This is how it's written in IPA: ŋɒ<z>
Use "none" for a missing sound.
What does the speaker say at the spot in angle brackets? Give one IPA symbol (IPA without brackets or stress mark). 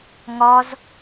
z